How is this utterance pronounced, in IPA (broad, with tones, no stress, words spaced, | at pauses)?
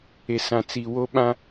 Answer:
e˨sã˨t͡si˨ wo˦ɓã˦